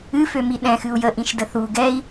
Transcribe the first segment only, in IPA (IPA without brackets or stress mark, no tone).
ɨ